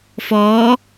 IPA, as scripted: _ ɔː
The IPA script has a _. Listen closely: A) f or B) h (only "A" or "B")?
A